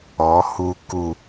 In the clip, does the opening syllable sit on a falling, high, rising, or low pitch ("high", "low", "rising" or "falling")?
rising